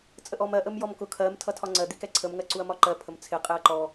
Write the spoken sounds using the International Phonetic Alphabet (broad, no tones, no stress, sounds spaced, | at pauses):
t͡sʼ ə ʔ ɔ m ɜ ʔ ə m j ɔ m k ʊ kʰ ɜ m tʰ ʌ tʰ ɒ ŋ͡ǀ ɜ d̪ i k ɛ ǀʰ ə m ŋ ɜ ǀ u ɐ̯ m ɒ ǃ ɜ pʰ ə m t͡sʰ ɪ qʼ ɪ ɐ̯ ǃ ɔ